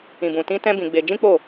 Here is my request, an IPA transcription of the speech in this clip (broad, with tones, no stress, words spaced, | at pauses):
ĩ˨bũ˨tĩ˧ tɛ̃˦bĩ˧ɡ͡be˧ d͡ʒĩ˦k͡po˦˨